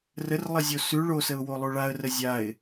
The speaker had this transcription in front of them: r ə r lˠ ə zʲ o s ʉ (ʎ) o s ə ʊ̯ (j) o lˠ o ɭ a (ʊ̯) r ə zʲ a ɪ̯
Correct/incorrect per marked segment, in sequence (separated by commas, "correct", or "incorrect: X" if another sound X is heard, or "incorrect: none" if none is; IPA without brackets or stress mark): incorrect: ɭ, incorrect: w, incorrect: ə̯